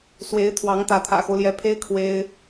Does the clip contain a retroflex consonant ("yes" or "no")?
no